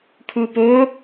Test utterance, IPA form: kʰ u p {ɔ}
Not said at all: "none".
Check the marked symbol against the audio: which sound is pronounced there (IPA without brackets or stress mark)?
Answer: o